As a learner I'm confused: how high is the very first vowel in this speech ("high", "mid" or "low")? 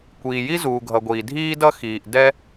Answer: high